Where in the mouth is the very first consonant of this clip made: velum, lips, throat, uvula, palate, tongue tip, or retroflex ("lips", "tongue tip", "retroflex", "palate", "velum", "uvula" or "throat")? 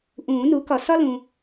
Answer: throat